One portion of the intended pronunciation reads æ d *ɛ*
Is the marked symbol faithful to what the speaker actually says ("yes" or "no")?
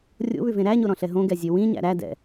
no